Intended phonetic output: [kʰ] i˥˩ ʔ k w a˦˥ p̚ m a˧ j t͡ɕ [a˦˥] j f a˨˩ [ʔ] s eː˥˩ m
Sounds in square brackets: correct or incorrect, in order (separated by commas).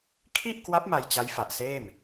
correct, correct, correct